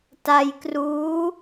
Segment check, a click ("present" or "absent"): absent